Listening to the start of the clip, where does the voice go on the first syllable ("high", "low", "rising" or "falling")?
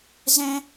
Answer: high